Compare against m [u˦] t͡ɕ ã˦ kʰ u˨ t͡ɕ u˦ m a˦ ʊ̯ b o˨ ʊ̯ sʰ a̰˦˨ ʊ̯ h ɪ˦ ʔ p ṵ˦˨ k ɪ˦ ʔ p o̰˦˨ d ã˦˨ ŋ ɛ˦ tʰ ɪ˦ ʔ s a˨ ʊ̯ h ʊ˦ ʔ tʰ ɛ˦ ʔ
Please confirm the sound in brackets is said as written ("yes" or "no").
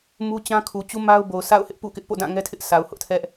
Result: yes